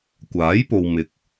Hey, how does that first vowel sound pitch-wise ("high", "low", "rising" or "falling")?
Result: rising